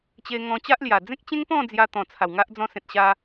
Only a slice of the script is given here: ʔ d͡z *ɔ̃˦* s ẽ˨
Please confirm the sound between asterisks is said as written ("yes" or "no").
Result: no